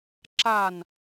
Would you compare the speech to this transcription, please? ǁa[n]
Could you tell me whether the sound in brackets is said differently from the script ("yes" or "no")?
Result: no